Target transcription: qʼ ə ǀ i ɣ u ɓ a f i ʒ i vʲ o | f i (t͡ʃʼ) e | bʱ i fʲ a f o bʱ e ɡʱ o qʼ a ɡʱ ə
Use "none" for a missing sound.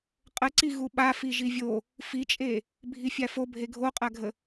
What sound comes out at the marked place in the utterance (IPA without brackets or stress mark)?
t͡ʃʼ